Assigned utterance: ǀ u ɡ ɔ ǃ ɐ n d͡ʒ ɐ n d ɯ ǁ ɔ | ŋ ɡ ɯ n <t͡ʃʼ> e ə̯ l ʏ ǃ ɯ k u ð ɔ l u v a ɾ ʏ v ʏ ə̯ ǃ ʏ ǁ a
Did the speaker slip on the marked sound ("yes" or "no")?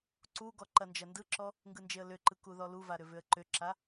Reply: yes